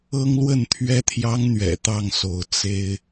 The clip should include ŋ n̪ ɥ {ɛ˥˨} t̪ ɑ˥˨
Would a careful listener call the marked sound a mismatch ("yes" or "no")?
yes